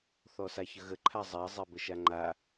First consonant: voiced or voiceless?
voiceless